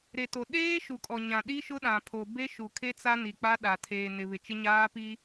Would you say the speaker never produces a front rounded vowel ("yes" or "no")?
yes